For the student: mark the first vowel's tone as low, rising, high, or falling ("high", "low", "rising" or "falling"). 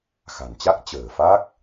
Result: low